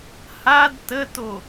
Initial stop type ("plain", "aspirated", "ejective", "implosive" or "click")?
plain